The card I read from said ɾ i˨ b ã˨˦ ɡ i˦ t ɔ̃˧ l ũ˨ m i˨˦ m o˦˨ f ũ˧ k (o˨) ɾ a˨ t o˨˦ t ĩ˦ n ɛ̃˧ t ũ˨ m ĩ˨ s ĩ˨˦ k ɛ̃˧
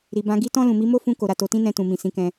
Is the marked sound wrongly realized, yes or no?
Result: no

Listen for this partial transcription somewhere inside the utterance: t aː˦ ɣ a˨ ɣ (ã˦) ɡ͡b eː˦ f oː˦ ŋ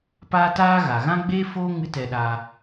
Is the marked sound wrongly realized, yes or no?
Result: no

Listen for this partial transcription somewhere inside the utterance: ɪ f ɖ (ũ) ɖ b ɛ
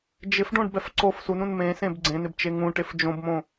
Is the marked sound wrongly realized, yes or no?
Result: yes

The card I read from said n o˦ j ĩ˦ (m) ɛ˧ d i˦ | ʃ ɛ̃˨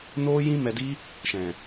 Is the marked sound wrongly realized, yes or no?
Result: no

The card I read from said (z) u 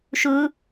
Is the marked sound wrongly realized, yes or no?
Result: yes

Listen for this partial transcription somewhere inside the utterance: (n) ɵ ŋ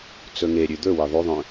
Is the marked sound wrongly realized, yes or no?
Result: yes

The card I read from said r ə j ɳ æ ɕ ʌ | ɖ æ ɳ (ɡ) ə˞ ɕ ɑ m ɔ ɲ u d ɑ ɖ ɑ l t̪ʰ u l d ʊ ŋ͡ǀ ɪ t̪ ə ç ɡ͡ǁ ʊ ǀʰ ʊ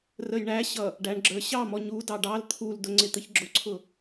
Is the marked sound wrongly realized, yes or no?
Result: yes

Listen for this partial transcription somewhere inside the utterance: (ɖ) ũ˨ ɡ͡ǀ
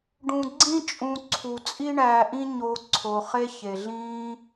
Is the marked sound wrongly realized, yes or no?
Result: no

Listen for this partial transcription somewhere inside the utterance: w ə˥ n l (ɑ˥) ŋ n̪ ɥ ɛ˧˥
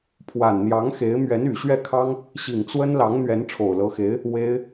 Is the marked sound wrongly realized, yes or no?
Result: yes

